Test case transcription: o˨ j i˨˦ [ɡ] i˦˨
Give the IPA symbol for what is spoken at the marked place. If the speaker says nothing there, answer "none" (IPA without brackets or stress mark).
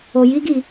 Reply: ɡ